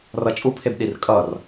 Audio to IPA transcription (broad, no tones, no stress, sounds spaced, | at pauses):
r ʌ t͡ʃʼ u pʰ e b ɗ i r kʼ ʌ r